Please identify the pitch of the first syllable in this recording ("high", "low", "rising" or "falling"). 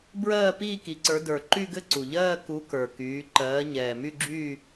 falling